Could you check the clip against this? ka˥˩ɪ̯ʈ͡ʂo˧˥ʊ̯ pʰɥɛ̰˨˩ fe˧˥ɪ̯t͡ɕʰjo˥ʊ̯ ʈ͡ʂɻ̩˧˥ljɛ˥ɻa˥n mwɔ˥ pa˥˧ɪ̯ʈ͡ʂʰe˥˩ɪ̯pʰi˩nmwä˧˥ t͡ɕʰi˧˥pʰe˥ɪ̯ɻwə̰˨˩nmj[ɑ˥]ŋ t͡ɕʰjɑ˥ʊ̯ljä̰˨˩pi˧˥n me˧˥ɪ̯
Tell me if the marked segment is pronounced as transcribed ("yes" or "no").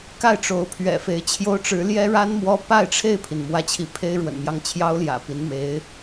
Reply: no